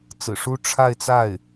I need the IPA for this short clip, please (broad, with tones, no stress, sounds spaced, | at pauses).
t͡s ɹ̩˨˩ ʂ u˥ ʈ͡ʂʰ a˥˧ ɪ̯ t͡s a˥˩ ɪ̯